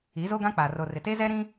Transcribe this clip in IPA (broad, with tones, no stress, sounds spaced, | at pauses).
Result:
i˨˦ z o˦ ɡ ã˦ k͡p a˨ r o˨ r ɪ˨ t e˦ z ɛ˦ ɾ ĩ˦